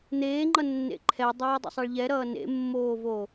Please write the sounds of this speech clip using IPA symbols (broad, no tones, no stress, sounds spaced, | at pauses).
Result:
n̪ eː ŋ͡ǃ ʌ nː ḛ ǃʰ ɛ dˤ ʌː dˤ ḛ sˤ ɛ ɭ ʎ ɛ ɾ ʌː n ḛ mː oː v o